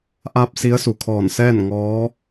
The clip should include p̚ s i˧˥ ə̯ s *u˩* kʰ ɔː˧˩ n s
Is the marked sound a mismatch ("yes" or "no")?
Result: no